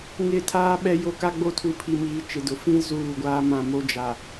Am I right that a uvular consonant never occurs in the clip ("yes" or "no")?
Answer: yes